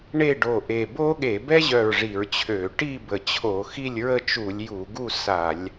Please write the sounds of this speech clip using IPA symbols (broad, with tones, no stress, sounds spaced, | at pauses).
ɳ e˥˨ ɖ o˧˩ ʔ e˧˩ b o˥ ɠ e˧˩˧ b ɛ˥ ʑ œ˧˩ ɹ ʐ i˧˩˧ ɹ t͡ɕʰ ø˧˩˧ ʈ i˥˨ b ə˧˩ t͡ɕʰ o˧˩˧ x i˥˨ lʲ ɹ ə˥˨ t͡ʃ u˧˩˧ lʲ j u˧˩˧ ɡ u˥˨ s a˧˩˧ lʲ